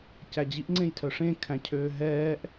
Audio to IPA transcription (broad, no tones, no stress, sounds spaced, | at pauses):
c æ d͡ʑ i ʔ ŋ͡ǀ ẽ j tʰ œ ʂ ẽ kʰ æ̃ cʰ øː ɦ ɛː ʔ